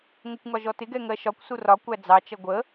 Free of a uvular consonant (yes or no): yes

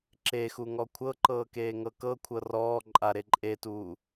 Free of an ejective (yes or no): no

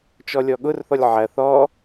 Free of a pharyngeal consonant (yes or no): no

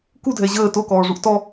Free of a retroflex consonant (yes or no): no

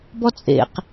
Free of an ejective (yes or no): no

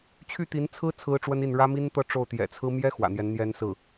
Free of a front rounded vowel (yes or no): no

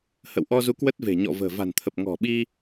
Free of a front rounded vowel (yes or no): yes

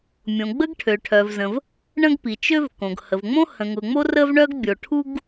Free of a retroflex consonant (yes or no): no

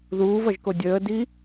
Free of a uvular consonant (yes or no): yes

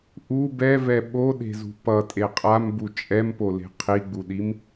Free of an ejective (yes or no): no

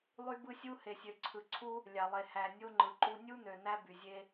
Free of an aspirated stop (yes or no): no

